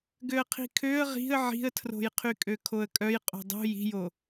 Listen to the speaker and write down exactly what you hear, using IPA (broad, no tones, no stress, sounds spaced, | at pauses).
ɡ ø ə̯ qʰ i̤ kʰ ø ə̯ ʁ i̤ ə̯ ʕ i̤ ə̯ tʰ r o̤ j qʰ y kʼ ø kʰ o ə̯ kʼ œ j qʼ o̤ dˤ ṳ j i̤ j o